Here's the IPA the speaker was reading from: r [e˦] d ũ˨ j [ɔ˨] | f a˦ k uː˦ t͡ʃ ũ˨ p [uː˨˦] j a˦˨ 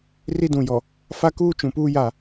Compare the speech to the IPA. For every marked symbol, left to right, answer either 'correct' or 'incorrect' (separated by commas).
incorrect, correct, incorrect